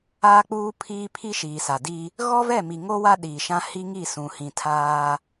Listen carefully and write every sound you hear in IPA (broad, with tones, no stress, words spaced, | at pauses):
aː˦k͡puː˦pʰiː˦ pʰi˦ʃiː˨sa˨ di˦ | ɣɔ˦vɛ˦˨ mi˨ŋo˦ wa˦ɗiː˨ʃã˦ hi˦ŋi˦˨sũ˨ hĩ˨tʰaː˦